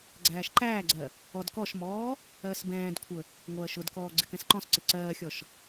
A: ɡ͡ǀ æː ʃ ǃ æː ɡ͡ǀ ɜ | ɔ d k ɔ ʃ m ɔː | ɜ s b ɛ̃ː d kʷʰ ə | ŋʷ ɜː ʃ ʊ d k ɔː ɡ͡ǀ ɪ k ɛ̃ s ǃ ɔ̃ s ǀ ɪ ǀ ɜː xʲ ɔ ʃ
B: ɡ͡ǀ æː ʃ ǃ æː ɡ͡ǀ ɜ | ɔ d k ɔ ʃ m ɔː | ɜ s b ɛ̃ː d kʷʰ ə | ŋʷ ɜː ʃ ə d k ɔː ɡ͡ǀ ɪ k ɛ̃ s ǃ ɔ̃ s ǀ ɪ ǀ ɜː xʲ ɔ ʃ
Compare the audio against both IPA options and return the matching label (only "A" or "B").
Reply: A